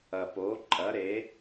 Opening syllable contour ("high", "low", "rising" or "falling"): low